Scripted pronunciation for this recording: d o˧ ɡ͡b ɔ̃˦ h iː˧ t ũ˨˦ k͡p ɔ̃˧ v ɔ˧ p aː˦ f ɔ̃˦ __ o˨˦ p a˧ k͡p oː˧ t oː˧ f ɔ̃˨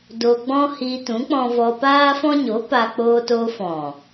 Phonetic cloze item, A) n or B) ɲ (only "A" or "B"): B